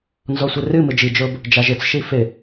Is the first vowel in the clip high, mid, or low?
mid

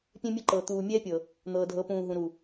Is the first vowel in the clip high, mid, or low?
mid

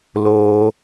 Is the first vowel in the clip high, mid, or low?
mid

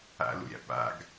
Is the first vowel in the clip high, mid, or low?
low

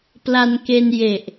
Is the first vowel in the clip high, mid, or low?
low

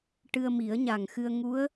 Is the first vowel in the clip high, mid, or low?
high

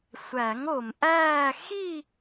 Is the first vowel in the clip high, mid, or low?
low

